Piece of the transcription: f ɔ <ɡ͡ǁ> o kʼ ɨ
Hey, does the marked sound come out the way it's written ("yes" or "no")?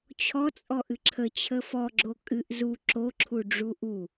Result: yes